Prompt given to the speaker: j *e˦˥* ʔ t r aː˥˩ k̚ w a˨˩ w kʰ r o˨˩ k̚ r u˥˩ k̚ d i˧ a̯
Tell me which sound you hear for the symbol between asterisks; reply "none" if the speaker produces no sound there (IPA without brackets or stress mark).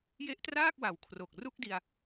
e˦˥